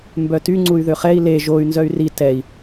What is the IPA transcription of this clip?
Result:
m b œ t y ŋ͡ǀ u y̯ ð ø χ ɛ i̯ l e ʒ o y̯ n z œ y̯ r i t ɛ i̯

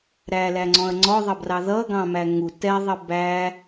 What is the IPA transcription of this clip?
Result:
ɾ æ l æ ŋ͡ǀ ɔ̃ ɐ̯ ŋ͡ǀ ɔ ðˤ ʌ b r ɑ ð ʌ ɡ ɑ̃ m æ ŋ u t ɛ ðˤ ə b æ

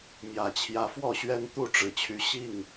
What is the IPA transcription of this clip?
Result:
m j ä˨˩ t͡ɕʰ j ä˨˦ f w ɔ˥˨ ɕ ɥ ɛ˦ n t̪ u˥˨ ʈ͡ʂ ɻ̩˨˩ t͡ɕʰ y˨˦ ɕ i˥˨ ŋ

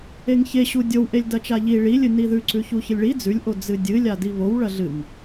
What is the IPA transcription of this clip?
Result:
e ŋ ç e ɕ u dʲ o w ʔ e lʲ d ɐ t͡ʃ a ʎ i ɭ i lʲ ɨ n i ð ʉ ǀ ʉ ç u ç ɨ lʲ ɭ i d͡z ʉ lʲ ʔ o d͡z ɨ dʲ ɨ lʲ a d i β o w ɭ ɐ ɮ ɨ ŋ

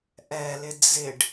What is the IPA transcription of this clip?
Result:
ʔ ɛ l ɪ d͡z ɪ ɖ

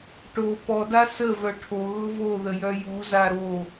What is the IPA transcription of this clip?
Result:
ʈ o p ɔ d a s ə v œ ʈʰ o ɣ ʊ v o ð ə j œ j u z a ɾ o

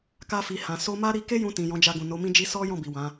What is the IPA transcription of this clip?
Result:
k a˧ f i˨ h ã˨ s o˧ m a˦ ɾ i˧ k e˦ j ũ˧ t ĩ˨ j ɔ̃˨˦ d͡ʒ a˧ ɡ ũ˨ n o˨˦ m ĩ˦ d͡ʒ i˦ s ɔ˦ j ɔ̃˦˨ b i˨ w ã˨˦

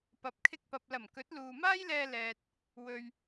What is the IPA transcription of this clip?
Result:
p ɐ˨ p̚ kʰ ɪ˧ k̚ p ɐ˨ p̚ l ɐ˨˩ m k ɵ˨˥ t̚ l uː˨ m aː˥ j l ɛː˧ l ɛː˨ t̚ | w ɵ˨ ɥ

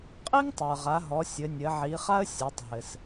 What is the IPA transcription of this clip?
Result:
qʼ i˥ ŋ tˤ ə˞˩ ʁ a˩˧ ɦ ɔ˩˧ sʲ ɘ˩˧ nʲ ɘ˩˧ ʕ i˩˧ χ a˥ ə̯ sʲ a˩˧ tˤ ɦ ɘ˩ s

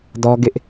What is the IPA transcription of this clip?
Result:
d ɔ˦ ɡ ɪ˦ ʔ

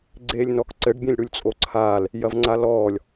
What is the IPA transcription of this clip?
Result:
ɡ͡ǀ eː lʲ n ɔ k ǀ ɘ ɖ bʲ ẽ lʲ ɽ u lʲ t͡sʼ o ǀʰ aː l | j ɐ v ŋ͡ǀ a l ɔː lʲ

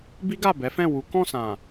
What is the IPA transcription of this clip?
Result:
b i˦ ɡ a˦˨ b ɛ˨˦ f ɛ̃˦˨ w u˨˦ k ɔ̃˦˨ s ã˨

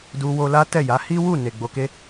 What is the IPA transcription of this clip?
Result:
d u˧ w o˧ l a˦ t ɛ˦˨ j a˨˦ h i˦ w u˦˨ n e˨ ɡ͡b o˨ k e˧

